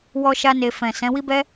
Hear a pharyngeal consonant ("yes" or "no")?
no